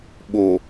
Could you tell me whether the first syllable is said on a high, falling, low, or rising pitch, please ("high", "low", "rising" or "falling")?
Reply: low